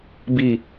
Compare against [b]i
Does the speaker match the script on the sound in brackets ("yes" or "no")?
yes